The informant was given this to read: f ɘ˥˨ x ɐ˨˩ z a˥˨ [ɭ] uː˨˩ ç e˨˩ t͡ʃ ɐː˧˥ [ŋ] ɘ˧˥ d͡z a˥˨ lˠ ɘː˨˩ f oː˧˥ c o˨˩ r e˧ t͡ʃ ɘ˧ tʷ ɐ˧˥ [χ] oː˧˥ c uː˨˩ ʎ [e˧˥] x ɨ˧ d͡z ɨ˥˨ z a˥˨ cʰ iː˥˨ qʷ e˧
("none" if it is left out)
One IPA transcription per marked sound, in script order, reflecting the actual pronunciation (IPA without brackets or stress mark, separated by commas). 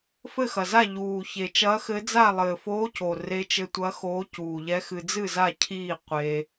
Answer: ʎ, x, x, ɛ˧˥